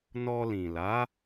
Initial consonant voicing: voiced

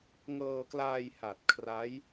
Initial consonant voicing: voiced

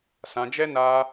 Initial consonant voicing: voiceless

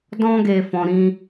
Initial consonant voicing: voiced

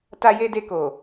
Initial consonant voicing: voiceless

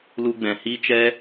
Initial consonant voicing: voiced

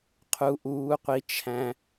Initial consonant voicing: voiceless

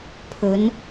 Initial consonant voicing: voiceless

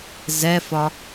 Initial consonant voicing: voiced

